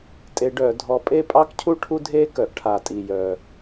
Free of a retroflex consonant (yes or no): no